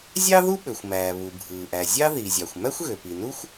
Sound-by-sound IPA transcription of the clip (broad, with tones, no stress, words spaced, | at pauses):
zʲɑ˥ðu˥ɓø˩xʷ mæː˩βu˩ bʱɯː˩ʔæ˩ zʲɑ˥ ði˩zʲɑ˩xʷ mæ˥xʷɣø˩pi˩ nu˥xʷ